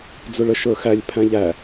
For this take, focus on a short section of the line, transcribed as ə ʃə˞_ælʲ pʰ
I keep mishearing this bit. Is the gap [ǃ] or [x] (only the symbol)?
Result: x